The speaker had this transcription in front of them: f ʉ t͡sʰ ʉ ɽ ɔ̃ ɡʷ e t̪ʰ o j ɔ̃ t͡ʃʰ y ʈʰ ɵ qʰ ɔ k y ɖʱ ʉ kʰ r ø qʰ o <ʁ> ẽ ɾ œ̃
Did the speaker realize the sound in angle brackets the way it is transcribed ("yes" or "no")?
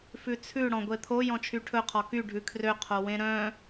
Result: no